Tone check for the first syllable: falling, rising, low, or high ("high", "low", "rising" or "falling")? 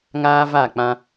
high